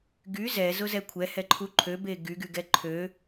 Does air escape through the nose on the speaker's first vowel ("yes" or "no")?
no